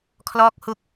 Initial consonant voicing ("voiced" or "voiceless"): voiceless